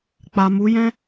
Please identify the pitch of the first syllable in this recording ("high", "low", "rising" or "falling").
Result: low